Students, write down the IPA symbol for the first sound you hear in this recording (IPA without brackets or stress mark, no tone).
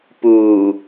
p